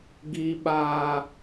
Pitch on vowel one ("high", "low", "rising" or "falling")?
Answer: high